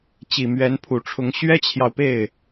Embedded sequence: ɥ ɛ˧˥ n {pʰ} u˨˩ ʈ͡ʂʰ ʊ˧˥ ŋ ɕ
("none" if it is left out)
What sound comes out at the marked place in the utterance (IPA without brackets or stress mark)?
pʰ